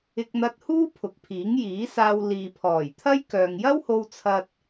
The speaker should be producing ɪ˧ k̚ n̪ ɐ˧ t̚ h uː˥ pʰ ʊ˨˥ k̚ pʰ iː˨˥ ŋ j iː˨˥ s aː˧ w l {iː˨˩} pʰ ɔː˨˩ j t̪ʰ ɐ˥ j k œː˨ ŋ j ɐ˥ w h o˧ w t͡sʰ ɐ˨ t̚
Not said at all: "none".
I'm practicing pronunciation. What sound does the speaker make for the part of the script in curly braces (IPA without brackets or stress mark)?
iː˨